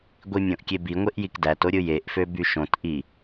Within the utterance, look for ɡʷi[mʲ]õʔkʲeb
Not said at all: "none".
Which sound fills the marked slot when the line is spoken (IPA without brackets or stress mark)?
mʲ